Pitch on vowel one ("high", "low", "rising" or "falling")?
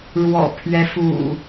low